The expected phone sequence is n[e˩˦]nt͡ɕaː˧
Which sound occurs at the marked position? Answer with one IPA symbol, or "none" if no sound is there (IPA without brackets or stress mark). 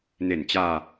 e˨˩